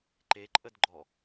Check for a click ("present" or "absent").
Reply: present